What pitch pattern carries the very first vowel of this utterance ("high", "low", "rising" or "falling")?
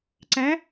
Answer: rising